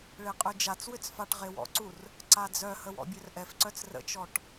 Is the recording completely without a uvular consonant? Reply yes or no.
no